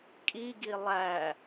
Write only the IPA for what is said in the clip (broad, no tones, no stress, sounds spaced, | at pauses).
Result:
kʼ i ɡ i lˠ æ